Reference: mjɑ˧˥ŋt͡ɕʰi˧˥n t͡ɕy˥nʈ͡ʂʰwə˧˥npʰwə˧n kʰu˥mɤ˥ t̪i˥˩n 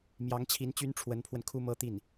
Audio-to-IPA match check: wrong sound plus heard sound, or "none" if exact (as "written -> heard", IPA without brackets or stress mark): none